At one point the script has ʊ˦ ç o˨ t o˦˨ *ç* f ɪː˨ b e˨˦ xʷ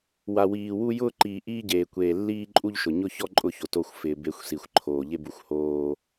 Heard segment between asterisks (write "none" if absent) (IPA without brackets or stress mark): xʷ